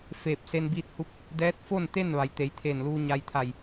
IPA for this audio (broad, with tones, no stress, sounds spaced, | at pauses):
f eː˧˩ p̚ s e˧ n b iː˧ t̚ h u˧˥ p̚ | d ɛː˧˥ t̚ f o˥˨ n t̪ e˥˨ n ʋ a˩˧ j t̪ e˩˧ j t̪ʰ eː˧˩ n l uː˧ ɲ a˧ j t̪ʰ a˧˩ j